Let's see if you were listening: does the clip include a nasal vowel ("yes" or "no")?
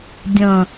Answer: yes